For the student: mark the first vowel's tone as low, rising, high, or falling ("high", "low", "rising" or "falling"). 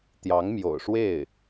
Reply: rising